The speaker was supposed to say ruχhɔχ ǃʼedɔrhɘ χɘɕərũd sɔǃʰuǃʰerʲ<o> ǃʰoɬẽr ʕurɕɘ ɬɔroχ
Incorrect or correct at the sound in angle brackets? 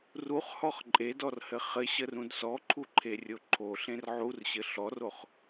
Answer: correct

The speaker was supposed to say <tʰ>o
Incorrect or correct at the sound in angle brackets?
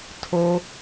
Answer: correct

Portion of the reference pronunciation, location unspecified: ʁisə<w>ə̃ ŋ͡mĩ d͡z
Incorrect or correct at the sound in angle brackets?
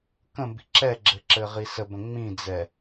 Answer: incorrect: b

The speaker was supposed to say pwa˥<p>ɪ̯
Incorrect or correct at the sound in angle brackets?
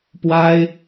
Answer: incorrect: none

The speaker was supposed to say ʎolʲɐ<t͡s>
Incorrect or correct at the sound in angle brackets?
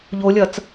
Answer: correct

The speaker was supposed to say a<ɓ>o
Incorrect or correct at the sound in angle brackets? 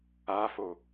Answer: incorrect: f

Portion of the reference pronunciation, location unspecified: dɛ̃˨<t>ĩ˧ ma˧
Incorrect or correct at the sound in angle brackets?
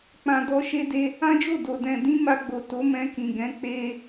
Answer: incorrect: d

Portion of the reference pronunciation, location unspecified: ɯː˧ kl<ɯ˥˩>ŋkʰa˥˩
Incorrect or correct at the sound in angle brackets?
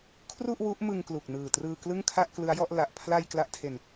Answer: correct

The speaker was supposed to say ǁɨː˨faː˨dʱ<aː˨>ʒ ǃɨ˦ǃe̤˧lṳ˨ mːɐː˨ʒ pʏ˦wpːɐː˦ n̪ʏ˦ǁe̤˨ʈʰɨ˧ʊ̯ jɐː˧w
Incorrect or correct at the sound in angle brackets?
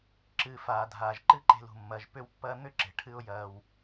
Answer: correct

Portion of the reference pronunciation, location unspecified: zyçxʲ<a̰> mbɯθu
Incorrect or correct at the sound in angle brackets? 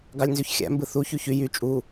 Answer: incorrect: æ̰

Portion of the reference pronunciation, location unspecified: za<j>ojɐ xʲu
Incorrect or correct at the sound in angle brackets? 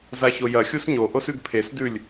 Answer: incorrect: ç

